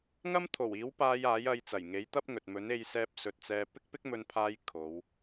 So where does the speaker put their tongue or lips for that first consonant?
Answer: velum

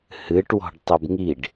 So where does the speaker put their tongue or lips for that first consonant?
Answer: throat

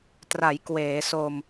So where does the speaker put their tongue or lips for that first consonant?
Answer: tongue tip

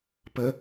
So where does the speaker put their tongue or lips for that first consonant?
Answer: lips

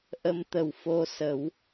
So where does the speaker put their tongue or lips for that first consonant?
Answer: throat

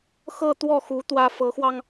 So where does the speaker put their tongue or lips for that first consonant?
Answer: velum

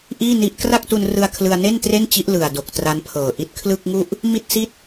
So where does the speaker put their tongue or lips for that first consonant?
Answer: throat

